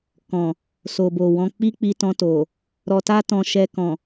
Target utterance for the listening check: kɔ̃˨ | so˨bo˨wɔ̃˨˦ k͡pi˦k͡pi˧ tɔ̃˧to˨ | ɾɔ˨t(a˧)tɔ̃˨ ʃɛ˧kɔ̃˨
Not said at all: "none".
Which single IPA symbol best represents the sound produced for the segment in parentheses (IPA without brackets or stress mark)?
a˧